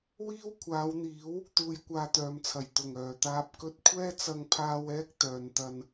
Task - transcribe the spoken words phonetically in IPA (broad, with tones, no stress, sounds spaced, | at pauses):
w iː˥ w kʷʰ aː˨˧ w n̪ iː˨˥ w | t̪ uː˧ j kʷ aː˧ t̪ œː˨ m t͡sʰ ɐ˨˩ j t̪ ʊ˨˩ ŋ œː˨˩ t̪ aː˧ p̚ k ɵ˧ t̚ kʷʰ ɛː˥ t͡s ɐ˧ ŋ pʰ aː˧ w ɛː˥ k̚ t̪ œː˨ n t̪ ɐ˧ n